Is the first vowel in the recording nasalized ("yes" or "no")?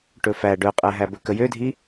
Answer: no